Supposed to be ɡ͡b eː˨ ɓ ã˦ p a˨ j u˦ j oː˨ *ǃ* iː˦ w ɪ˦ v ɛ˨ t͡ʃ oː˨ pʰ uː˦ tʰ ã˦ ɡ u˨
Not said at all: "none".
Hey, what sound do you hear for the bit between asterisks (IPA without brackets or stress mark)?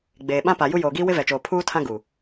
ɡ